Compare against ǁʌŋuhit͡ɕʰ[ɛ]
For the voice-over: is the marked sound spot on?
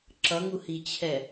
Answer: yes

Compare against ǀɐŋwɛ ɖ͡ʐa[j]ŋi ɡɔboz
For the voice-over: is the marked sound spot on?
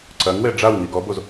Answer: no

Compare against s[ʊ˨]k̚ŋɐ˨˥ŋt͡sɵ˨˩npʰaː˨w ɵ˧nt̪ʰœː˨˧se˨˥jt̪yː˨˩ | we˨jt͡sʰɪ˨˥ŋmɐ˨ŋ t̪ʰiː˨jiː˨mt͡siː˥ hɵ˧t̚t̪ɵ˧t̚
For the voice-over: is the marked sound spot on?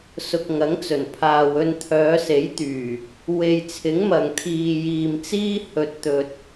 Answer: yes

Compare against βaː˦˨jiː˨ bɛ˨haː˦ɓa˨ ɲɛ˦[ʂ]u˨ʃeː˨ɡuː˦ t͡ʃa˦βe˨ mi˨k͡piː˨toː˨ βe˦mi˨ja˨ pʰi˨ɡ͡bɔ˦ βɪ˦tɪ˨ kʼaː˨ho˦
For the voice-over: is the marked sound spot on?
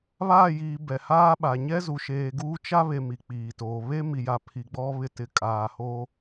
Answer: no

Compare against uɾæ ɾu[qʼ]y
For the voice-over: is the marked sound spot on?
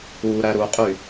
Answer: yes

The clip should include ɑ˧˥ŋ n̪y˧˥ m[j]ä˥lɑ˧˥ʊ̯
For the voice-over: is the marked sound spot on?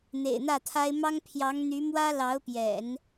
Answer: no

